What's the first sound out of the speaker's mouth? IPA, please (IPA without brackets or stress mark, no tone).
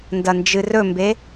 n